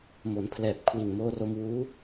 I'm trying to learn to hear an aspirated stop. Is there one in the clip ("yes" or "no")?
yes